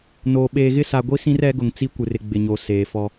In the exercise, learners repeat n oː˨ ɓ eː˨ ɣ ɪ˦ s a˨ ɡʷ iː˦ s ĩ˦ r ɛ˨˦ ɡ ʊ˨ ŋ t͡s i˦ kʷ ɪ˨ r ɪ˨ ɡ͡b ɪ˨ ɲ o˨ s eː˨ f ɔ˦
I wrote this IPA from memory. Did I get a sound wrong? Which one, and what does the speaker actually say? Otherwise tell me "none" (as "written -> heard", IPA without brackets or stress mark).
iː˦ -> i˦